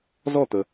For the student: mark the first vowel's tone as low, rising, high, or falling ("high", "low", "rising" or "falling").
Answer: falling